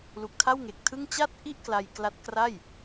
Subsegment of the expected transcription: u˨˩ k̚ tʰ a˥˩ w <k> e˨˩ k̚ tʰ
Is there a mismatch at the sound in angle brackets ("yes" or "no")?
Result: yes